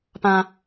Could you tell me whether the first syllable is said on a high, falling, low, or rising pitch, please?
high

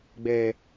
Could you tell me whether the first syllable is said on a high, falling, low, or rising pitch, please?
low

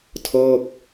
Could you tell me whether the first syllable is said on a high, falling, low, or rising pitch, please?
falling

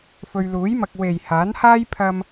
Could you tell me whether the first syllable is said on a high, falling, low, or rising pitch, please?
low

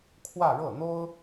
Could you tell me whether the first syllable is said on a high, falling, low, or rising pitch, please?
falling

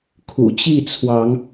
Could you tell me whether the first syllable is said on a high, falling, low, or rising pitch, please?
low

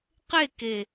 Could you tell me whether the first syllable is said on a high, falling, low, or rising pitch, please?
falling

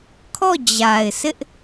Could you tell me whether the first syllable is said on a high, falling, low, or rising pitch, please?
falling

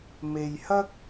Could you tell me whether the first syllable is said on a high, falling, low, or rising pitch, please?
low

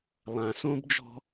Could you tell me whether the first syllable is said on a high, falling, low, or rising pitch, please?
low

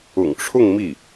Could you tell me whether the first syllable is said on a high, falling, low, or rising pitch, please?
low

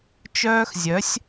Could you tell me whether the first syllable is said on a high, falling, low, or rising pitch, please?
high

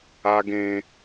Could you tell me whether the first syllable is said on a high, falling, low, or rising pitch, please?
high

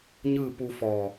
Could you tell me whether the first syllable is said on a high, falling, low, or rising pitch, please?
falling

